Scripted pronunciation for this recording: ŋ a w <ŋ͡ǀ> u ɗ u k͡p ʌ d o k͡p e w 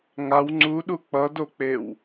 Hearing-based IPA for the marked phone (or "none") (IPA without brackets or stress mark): ŋ͡ǀ